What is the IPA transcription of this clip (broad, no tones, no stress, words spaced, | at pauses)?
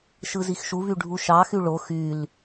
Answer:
ʃɯzixʃuvy ɖʱuʃɑxy ɭo xyl